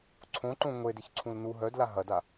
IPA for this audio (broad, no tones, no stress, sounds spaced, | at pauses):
ǀʰ õ ǃ õ ŋʷ e d ɪ ç ǀʰ ũ l n u ɦ œ d l a ɦ ɐ d a